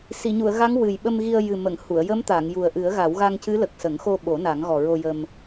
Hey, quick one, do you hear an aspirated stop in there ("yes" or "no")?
no